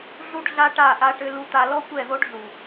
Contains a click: no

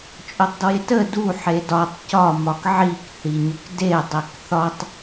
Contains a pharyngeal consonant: yes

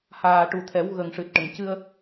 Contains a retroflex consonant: yes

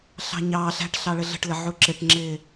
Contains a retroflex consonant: yes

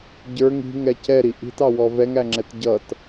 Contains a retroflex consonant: no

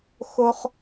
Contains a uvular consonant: yes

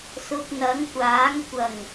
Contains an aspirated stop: no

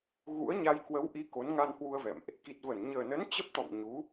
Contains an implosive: no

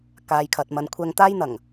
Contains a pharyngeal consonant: no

